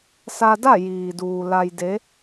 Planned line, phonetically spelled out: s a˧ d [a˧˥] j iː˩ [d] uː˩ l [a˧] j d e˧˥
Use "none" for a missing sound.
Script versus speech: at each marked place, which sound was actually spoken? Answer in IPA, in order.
a˥˨, d, a˧

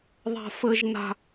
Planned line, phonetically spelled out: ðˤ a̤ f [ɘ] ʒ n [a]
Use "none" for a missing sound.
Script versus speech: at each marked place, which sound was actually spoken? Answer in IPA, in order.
ɘ, a̤

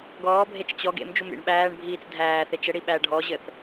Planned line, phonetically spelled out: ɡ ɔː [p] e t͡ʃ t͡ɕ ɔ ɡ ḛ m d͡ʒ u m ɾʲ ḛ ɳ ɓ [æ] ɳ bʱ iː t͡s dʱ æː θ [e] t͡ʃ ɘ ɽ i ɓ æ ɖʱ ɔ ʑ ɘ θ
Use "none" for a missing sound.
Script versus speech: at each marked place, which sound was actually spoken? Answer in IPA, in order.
bʱ, æː, e

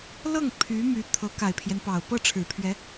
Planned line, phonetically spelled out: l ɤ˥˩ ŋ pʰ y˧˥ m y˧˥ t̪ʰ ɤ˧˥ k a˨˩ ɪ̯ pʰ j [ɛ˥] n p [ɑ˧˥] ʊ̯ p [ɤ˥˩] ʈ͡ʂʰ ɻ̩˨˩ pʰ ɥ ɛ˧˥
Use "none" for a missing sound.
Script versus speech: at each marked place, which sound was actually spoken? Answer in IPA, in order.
ɛ˦, ɑ˨˩, ɤ˥˩

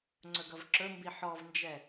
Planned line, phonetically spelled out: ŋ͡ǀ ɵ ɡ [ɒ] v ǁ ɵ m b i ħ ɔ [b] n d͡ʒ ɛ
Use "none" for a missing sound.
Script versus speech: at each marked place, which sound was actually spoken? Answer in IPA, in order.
ʌ, v

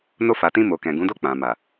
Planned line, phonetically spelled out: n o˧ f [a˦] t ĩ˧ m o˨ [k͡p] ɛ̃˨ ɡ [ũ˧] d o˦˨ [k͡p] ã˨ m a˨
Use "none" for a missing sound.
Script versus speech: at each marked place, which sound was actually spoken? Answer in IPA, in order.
a˨, k, ũ˨˦, k͡p

